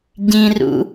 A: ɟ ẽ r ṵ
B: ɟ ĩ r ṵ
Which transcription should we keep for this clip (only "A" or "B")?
B